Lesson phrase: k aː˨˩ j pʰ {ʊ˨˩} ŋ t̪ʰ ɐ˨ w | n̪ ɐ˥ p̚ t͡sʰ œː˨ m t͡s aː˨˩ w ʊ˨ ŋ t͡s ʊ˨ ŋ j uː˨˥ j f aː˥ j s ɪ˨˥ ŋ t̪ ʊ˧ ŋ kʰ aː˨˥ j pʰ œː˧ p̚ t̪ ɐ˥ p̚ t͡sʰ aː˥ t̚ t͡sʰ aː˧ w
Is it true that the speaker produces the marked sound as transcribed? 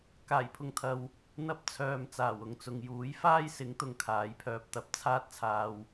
no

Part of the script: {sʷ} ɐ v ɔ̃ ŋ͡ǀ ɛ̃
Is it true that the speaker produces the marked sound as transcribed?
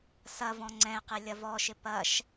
no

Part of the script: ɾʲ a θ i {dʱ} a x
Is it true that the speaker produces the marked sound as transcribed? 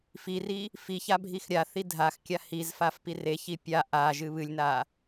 yes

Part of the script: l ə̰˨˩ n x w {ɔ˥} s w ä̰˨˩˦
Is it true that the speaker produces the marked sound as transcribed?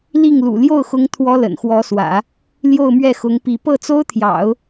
no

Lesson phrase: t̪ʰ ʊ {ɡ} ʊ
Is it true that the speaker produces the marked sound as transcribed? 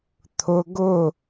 yes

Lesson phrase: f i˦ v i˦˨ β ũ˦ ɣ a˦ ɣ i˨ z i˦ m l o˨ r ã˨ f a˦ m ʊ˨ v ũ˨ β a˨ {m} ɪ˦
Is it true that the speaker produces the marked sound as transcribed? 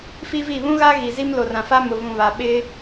no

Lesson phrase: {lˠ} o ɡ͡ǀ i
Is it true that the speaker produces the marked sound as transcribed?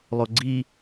yes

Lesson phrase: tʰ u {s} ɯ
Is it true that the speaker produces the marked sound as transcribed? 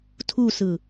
yes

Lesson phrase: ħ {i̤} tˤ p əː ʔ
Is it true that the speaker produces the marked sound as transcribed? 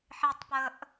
no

